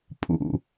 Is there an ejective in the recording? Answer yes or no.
yes